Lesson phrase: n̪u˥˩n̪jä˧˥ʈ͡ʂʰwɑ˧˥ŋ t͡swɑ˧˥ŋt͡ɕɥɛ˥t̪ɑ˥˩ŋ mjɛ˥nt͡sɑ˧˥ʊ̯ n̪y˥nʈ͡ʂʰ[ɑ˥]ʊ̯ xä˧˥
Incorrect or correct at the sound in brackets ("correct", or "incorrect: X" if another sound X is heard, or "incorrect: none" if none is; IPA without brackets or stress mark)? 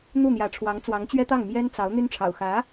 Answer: incorrect: ɑ̰˨˩